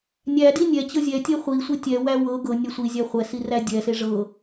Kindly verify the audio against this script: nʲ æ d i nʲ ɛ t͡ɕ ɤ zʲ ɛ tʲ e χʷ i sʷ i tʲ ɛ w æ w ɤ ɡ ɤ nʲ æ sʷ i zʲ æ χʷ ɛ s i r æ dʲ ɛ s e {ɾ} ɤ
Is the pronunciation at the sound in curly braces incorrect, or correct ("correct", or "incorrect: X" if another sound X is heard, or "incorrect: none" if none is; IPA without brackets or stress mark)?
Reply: incorrect: ʐ